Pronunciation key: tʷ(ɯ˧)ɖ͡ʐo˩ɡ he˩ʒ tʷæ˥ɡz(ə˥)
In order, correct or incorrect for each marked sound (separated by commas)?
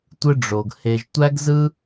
correct, incorrect